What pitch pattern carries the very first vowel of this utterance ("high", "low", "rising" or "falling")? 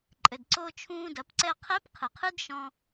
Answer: low